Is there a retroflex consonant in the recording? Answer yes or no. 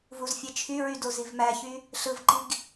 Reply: no